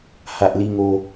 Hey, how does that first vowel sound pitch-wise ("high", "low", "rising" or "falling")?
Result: low